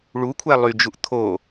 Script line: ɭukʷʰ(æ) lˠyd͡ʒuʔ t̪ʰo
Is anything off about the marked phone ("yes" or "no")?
no